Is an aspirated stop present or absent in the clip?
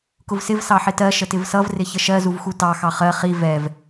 absent